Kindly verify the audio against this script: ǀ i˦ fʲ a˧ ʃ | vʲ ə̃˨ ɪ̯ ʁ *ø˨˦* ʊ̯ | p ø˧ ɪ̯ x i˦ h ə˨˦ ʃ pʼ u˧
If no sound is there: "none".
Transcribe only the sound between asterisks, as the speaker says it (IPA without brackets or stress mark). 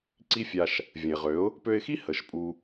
ø˨˦